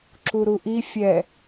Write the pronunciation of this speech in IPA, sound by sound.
ǁuɾuʔi fʲɛ

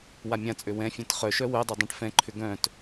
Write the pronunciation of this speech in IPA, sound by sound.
wamʲãt͡sʼø wɛ̃fʲɛ̃t χœʃœ wœdˤø dˤãʈfɛ̃ǃʰʏ ɡœ̃t

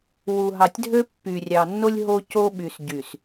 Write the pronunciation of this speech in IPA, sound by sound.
wu˨ɦɑ˨tʲdʱø˦ pːy˨rʲɑ˨nːo˦lʲ ɦo˦co˦ɓy˨s ɟy˨s

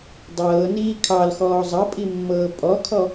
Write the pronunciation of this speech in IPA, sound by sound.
dˤɤːniː kʰɑlxɔː zˤɐpʼimːɤː pʼɔkʰɔ

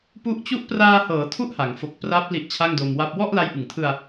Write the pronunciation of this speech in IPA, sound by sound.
pu˥˩ʔ t͡ɕu˦˥ʔpraː˧hɤː˩˦ tʰu˥˩ʔha˩˦ŋfo˨˩k̚ pra˦˥p̚ li˦˥ʔt͡ɕʰa˥˩ŋdo˧mwa˥˩p̚ wɔ˥˩ʔla˦˥jʔɯ˨˩ŋtʰɯ˧a̯

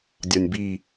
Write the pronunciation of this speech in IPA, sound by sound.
dʲɒnʲbi

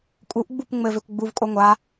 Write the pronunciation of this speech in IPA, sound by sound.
kʼuʔɡ͡bup ŋ͡mɘvekʷ ɡ͡buvkʼo ŋʷa

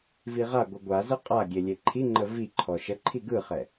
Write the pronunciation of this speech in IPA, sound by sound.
viʁaɡʷɯ ɡʷazə qʼa ɡʲelʲeǃʰiŋ͡ǃə vi ǃʰɔʃəǃʰi ɡɯχɛ

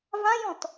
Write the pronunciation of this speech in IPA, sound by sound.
vãjɔ̃t

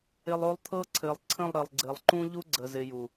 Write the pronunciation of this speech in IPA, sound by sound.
ɪ˨lˠ o˦lˠt̪ʰɤ˦ ǀʰɘ˨lˠǀʰə̃˦˨lˠɾɘ˨lˠ ɡ͡ǀɘ˨lˠǃũ˦ʎu˦ ɡ͡ǀə˨zɪ˨ ju˨

